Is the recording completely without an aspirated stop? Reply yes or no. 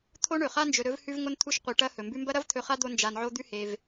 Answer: no